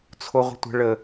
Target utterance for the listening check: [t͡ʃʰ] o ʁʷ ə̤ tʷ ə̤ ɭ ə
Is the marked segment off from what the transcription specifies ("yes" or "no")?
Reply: yes